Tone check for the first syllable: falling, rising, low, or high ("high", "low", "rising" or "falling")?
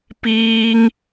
high